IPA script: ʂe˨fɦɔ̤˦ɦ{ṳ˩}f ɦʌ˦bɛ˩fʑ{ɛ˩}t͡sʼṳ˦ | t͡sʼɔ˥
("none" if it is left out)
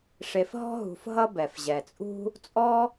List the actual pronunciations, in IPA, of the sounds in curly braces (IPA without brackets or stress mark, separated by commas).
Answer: ṳ˨, ɛ˩